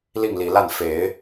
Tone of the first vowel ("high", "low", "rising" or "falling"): falling